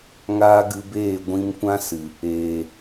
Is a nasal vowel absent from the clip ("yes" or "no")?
no